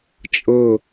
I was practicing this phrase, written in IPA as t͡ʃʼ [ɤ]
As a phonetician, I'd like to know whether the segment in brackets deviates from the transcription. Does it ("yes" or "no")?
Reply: no